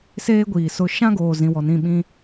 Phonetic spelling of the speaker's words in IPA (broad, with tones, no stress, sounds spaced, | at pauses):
s eː˦ ɡʷ iː˨ s ʊ˦ ʃ ã˦ ɡ oː˨ z ĩ˨ w ɔ˨ n ĩ˦˨ ɓ ĩ˦